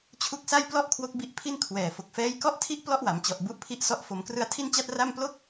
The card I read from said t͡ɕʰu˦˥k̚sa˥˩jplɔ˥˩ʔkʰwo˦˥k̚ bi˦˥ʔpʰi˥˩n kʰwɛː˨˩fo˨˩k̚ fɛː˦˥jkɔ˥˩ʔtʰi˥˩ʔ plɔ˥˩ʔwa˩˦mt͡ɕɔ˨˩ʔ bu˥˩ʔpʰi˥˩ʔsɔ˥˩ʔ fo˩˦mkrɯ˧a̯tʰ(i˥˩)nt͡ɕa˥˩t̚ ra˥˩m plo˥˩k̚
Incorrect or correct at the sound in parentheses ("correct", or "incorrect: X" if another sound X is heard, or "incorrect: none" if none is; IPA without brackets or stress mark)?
correct